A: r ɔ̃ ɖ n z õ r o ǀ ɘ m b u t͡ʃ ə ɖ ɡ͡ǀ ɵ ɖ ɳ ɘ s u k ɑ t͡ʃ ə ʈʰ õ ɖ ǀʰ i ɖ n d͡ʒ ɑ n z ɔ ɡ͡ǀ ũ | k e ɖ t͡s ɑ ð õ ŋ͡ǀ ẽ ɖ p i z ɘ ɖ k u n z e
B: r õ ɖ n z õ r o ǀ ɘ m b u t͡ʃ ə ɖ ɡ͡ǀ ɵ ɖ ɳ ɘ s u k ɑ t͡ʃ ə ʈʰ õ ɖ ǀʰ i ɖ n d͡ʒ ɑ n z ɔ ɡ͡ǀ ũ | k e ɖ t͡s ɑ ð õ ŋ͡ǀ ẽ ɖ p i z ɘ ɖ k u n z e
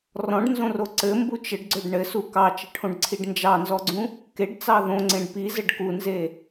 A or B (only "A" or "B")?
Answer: A